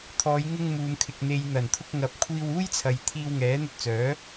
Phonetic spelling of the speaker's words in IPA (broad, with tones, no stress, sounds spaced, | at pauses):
t̪ʰ ɔː˨˧ j ŋ ɪ˧ ŋ m uː˨ m kʰ ɪ˨ k̚ n̪ e˨ j n̪ ɐ˨˩ n t̪ʰ ʊ˧ k̚ ŋ ɐ˨ p̚ kʷʰ iː˧ w uː˥ j t͡sʰ ɐ˨ j t̪ʰ iː˧ w ŋ ɛː˨˥ n̪ ɵ˧ t̚ t͡s œː˨˥